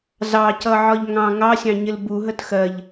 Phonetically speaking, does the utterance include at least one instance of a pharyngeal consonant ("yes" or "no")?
yes